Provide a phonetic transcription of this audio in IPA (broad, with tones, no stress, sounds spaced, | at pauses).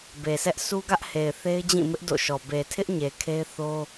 b e˨ s ɛ˦ ʔ sʰ u˦ ɡ ä˦ ʔ h e˨ ɪ̯ θ e˦ ɪ̯ d͡ʑ ĩ˦˨ m ɪ˦ ʔ d o̰˦˨ ʃ ɔ˨ b e˨ tʰ ɪ˦ ʔ ɲ e˨ kʰ e˦ ɪ̯ θ o˦